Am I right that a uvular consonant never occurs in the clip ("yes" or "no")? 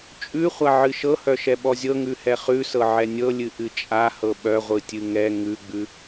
no